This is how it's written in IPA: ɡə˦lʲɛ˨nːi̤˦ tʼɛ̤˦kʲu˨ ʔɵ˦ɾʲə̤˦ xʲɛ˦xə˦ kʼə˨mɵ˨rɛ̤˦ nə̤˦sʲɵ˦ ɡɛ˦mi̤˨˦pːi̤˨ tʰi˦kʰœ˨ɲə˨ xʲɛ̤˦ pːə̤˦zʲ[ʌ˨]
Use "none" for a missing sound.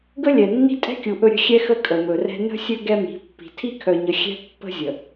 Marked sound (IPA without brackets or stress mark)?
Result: ə˨